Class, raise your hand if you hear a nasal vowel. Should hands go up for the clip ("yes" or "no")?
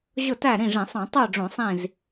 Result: yes